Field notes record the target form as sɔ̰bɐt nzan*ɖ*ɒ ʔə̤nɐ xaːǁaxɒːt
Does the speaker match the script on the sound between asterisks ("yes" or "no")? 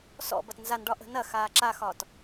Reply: yes